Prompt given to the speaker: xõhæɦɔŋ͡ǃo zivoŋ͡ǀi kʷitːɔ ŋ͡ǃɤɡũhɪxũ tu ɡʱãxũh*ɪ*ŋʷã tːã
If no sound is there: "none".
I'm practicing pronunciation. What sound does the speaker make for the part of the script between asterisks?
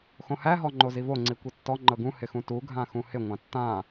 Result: ɪ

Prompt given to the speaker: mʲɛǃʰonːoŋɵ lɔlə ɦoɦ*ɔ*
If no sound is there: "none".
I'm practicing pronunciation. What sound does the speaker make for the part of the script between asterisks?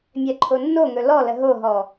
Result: ɔ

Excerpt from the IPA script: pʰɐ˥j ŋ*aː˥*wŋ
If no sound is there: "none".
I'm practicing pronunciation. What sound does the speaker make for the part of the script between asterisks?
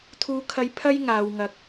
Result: aː˨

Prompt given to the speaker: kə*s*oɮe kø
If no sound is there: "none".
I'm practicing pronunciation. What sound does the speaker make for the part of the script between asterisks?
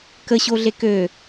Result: ɕ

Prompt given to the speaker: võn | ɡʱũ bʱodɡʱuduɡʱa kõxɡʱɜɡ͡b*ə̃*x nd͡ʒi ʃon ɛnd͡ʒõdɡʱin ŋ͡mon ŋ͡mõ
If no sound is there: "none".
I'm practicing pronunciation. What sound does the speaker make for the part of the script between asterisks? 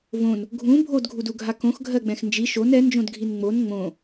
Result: ɛ̃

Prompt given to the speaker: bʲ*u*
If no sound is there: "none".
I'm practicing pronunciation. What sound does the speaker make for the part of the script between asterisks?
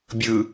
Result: ɯ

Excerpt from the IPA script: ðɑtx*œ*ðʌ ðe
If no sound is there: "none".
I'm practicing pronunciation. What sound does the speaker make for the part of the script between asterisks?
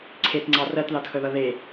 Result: œ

